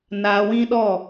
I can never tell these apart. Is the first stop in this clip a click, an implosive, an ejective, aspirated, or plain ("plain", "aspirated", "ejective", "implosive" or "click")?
implosive